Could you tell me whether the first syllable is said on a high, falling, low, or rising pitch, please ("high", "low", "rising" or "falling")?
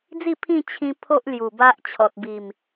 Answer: falling